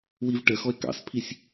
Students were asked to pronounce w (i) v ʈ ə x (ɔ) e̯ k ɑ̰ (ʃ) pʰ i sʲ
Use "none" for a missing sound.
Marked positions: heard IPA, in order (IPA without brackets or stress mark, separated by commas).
i, ɔ, s